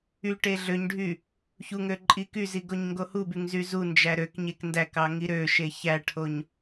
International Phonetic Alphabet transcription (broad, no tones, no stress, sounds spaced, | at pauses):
y ʈ e ɮ ø ɲ ɖʱ y | ç u ŋ ø ǃʼ i k y z i ɡ o ɲ ŋ ɡ o h u b y ŋ z y z u n d͡ʒ æ ɾ ø k ɲ e k n d æ k ɑ ŋ i ɾ ø ʃ e ç æ ʈʰ o ɲ